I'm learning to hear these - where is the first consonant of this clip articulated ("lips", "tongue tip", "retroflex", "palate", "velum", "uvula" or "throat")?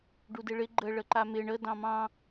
retroflex